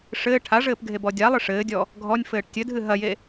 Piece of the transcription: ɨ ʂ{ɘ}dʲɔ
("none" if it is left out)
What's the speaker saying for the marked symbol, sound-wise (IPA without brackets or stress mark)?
ɘː